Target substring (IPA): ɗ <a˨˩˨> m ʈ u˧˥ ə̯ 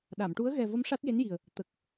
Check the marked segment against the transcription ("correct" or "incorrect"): correct